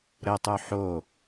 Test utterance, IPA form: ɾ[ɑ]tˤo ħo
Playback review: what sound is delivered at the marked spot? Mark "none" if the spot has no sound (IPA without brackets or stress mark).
ə